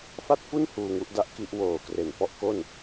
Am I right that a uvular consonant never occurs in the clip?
yes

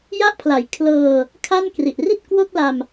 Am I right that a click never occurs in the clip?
yes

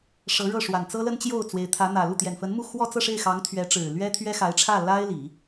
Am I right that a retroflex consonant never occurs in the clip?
no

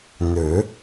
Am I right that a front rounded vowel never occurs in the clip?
no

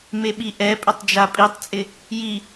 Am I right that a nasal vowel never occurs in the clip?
yes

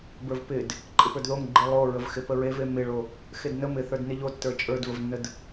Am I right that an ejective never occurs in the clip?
no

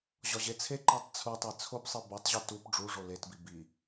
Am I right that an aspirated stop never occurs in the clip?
no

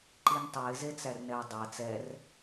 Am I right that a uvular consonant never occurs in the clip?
yes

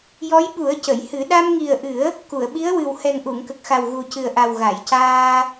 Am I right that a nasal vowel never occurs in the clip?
yes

